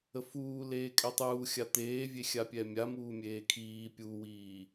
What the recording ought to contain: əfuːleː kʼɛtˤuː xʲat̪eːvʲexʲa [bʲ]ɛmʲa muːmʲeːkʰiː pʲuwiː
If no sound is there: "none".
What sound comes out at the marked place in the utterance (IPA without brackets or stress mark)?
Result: pʲ